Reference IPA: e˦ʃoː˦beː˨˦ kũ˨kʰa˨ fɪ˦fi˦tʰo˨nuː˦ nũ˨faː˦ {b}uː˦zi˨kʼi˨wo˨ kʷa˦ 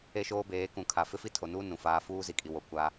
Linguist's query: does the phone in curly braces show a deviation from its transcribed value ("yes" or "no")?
yes